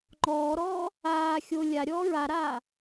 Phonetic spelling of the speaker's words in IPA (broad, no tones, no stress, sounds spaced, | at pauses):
ŋ͡ǃ ɔː ɾ ɔː | aː xʲ o lʲ a ɾʲ ɔː ɹ a ɾ aː